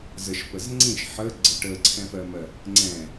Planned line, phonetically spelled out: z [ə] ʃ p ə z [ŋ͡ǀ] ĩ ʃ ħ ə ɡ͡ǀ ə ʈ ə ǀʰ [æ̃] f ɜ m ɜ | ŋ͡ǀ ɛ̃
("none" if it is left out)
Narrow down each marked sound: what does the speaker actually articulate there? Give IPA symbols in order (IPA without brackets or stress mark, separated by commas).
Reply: ə, ŋ͡ǀ, ɛ̃